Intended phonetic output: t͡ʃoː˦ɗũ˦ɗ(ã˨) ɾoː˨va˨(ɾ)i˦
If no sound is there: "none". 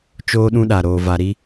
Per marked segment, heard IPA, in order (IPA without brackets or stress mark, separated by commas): a˨, ɾ